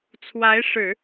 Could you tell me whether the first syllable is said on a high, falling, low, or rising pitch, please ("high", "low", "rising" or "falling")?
rising